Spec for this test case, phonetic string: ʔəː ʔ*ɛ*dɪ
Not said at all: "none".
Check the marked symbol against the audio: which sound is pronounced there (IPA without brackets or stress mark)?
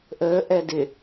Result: ɛ